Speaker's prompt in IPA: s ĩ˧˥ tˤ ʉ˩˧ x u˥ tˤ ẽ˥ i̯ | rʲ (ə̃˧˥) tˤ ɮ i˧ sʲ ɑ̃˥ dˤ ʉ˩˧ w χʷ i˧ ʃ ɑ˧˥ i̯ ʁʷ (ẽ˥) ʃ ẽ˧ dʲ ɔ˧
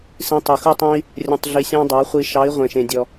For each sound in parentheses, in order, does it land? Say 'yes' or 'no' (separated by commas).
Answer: no, no